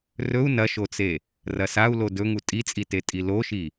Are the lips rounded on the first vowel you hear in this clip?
yes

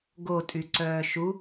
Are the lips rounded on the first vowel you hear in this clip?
yes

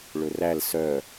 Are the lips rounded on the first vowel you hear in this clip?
yes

